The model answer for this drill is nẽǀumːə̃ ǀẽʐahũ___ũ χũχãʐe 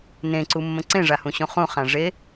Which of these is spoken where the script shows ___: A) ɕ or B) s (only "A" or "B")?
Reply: A